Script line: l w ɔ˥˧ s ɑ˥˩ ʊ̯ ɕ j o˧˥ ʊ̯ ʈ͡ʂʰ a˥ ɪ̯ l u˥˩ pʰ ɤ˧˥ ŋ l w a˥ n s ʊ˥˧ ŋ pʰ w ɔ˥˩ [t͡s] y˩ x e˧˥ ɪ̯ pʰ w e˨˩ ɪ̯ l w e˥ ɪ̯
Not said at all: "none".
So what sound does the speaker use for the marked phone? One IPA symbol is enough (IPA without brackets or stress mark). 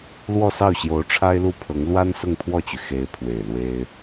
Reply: t͡ɕ